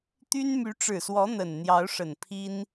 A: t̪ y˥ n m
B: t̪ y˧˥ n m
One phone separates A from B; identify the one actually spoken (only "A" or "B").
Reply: A